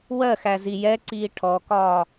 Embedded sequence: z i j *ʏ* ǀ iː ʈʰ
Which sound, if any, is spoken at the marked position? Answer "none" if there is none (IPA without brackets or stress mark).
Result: ɛ